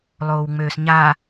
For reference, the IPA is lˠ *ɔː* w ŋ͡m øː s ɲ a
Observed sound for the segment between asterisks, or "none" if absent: oː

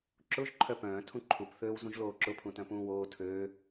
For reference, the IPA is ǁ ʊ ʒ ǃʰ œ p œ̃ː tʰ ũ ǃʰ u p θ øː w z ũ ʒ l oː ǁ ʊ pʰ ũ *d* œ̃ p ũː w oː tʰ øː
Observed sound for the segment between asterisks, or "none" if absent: t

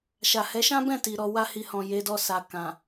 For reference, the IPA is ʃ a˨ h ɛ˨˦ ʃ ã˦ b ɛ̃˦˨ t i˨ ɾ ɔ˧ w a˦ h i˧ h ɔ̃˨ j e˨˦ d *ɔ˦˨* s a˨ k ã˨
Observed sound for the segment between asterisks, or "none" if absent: ɔ˦˨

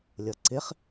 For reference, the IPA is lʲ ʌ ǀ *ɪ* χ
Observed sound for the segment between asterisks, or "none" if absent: ɪ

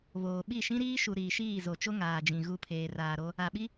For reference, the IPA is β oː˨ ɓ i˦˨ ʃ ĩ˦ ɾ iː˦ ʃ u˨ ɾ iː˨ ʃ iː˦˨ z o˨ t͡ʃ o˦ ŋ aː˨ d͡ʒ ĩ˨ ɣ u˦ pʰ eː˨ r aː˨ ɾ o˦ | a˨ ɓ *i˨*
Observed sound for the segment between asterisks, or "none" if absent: i˦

